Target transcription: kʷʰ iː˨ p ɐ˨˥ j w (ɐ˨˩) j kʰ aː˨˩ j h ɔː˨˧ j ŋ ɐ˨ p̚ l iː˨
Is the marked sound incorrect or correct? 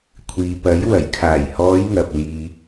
correct